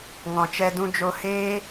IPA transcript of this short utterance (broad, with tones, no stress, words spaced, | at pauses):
ŋɔ̃˨t͡ʃɛ˧ dũ˧d͡ʒo˧heː˦